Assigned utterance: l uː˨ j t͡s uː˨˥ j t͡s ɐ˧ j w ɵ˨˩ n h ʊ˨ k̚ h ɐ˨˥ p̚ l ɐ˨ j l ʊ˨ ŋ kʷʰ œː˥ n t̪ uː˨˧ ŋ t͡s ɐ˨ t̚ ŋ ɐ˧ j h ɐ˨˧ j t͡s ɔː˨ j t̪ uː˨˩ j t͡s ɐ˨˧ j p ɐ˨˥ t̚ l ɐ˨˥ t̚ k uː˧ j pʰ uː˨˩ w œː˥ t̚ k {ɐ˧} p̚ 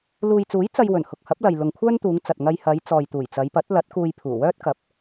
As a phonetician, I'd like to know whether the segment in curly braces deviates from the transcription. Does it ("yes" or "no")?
yes